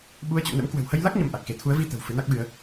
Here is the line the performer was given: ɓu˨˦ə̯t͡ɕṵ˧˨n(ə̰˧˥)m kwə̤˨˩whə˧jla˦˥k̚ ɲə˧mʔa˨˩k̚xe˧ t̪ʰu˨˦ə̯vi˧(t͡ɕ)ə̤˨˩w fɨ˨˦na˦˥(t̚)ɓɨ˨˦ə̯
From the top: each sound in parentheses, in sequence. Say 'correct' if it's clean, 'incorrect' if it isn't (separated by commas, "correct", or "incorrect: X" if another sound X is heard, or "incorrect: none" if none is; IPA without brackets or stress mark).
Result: correct, incorrect: t̪, incorrect: k̚